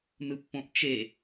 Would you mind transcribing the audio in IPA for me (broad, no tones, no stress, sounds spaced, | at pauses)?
n ɯ pː õ ʔ t͡ʃ e